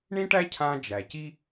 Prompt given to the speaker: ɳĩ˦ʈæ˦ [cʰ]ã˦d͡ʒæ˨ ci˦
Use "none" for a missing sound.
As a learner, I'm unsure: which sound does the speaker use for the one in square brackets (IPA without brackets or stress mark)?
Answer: cʰ